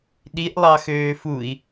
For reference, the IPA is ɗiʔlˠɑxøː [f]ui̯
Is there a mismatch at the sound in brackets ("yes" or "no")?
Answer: no